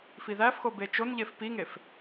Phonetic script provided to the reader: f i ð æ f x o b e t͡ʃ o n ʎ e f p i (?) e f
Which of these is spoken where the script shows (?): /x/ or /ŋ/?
ŋ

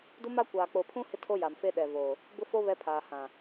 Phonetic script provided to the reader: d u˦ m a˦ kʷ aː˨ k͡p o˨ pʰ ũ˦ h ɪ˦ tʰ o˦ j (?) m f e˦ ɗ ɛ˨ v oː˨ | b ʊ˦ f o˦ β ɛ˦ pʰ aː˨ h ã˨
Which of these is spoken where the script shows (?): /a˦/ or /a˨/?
a˨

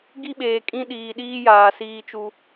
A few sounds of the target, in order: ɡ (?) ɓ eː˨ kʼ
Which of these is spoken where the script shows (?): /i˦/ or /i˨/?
i˦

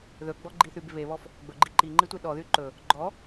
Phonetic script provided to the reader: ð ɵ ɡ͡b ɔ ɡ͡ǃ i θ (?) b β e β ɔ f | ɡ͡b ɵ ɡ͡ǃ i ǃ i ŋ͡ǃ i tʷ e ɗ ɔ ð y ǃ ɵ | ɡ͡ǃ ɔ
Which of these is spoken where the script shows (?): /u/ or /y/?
y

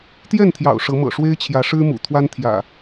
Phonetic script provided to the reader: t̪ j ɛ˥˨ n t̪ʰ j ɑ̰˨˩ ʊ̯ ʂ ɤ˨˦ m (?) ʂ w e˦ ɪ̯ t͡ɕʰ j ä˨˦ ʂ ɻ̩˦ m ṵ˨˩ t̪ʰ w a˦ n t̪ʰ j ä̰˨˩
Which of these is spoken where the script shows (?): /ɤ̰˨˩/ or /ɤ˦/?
ɤ̰˨˩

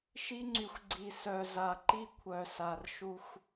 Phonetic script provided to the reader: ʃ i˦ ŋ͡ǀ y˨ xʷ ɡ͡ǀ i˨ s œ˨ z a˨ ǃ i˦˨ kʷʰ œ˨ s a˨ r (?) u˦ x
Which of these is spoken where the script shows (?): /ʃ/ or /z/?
ʃ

